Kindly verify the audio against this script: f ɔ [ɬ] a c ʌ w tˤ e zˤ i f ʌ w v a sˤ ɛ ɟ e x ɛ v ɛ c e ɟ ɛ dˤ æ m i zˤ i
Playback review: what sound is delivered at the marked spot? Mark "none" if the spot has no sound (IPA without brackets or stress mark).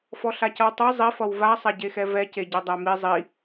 ɬ